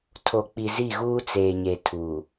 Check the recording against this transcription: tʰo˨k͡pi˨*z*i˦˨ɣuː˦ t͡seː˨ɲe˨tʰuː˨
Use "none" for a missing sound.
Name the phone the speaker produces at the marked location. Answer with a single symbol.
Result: z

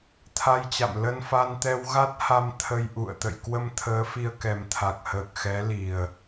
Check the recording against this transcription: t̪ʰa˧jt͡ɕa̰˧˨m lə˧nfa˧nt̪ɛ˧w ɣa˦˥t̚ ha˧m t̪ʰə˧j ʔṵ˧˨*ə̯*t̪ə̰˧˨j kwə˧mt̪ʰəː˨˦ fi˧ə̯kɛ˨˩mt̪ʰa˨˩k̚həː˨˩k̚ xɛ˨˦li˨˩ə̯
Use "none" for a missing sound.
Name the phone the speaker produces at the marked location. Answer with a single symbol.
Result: ə̯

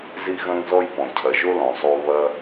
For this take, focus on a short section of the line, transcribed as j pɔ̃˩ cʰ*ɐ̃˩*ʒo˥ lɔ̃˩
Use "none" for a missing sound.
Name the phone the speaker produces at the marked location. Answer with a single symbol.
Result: ɐ˩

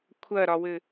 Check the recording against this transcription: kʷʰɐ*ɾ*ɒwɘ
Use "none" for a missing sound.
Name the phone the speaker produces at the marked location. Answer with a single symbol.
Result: ɾ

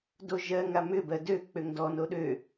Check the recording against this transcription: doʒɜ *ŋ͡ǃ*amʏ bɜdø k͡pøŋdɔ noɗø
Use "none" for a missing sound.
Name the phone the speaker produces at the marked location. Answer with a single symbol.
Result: ŋ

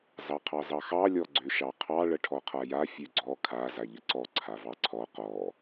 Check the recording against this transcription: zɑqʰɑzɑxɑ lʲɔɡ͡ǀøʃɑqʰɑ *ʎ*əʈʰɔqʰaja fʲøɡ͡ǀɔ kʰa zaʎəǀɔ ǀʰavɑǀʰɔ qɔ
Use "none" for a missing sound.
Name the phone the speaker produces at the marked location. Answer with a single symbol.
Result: ɭ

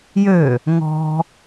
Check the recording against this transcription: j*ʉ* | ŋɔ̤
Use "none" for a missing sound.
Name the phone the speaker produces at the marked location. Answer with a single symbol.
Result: ø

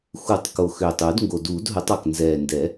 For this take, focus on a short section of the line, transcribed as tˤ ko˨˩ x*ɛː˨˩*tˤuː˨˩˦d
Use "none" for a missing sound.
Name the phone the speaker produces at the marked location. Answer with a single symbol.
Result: øː˨˩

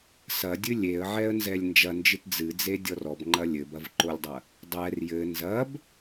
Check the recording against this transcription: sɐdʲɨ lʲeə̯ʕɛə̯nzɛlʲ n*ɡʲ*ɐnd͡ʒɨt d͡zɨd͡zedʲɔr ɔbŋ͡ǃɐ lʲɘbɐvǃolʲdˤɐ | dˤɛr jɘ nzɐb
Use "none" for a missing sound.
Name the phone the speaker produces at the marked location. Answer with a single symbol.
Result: d͡ʒ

